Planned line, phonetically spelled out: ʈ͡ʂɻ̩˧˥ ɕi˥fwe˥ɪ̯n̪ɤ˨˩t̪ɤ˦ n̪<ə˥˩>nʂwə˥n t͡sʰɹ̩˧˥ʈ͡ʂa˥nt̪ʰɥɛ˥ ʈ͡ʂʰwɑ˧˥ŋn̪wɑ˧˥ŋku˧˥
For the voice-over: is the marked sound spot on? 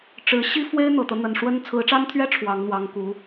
no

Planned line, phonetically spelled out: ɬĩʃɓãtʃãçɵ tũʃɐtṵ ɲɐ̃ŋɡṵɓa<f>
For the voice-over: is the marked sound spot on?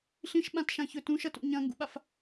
yes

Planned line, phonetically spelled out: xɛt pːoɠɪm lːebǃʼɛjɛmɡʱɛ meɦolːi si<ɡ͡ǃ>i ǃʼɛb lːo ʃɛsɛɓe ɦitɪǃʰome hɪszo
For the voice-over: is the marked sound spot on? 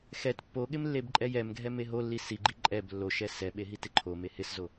yes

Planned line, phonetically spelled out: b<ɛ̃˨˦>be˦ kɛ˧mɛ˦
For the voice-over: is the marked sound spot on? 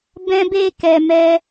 no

